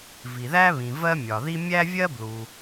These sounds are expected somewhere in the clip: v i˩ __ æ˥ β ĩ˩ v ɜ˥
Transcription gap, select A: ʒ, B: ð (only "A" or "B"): B